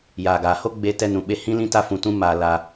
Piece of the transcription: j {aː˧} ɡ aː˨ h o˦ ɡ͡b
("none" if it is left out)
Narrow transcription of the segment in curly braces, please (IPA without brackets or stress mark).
aː˨